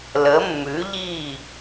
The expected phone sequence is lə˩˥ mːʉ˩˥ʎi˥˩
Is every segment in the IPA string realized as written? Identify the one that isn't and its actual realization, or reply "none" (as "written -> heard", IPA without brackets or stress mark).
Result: none